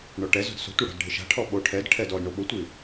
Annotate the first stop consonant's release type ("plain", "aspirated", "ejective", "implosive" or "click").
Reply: plain